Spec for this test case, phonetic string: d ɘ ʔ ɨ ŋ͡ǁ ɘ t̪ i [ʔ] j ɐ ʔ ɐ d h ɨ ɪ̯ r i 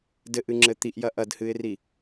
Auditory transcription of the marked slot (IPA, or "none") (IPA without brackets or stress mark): ʔ